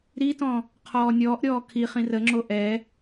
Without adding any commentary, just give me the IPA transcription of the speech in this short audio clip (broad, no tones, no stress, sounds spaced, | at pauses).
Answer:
ɾ i t ɔ̃ | qʰ ɔː nʲ ɔː ʔ ɾʲ ɔː kʰ i χ ĩ r ə ŋ͡ǁ o ʔ ɛ